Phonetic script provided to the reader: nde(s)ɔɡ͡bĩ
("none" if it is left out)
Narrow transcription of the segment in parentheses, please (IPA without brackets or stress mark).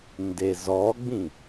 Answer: z